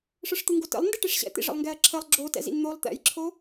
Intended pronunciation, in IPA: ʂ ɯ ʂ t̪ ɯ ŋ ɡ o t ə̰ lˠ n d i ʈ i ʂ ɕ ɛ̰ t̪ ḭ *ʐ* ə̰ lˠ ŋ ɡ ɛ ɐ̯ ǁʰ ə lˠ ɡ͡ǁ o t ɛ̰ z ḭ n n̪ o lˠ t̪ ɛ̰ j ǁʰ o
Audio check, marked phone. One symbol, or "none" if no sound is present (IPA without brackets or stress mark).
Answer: ʐ